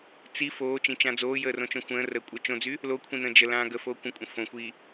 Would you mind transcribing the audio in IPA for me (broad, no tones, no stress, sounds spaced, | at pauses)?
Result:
t͡s i f oː t͡ʃ ĩ t͡ʃ ã d͡z oː j əː r õ t͡ʃ õ xʷ ə̃ː r əː kʷʼ əː t͡ʃ õ d͡z y | l o kʷʰ ĩ n ə̃ː d͡ʒ ə l ãː ɡ ə f oː kʷ ə̃ kʷʼ ə̃ f õ xʷ i